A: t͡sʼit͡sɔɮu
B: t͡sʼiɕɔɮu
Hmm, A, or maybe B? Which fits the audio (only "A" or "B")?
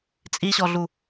B